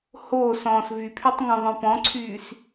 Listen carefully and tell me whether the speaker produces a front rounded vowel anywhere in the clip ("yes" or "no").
yes